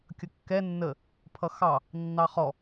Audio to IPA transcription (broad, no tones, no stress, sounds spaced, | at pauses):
kʲ ʌ kː ɛ nː ə | pʰ ʌ x ɑ | nː ɑ χ ɔ